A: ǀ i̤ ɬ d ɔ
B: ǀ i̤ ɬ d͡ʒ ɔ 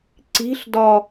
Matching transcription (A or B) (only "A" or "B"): A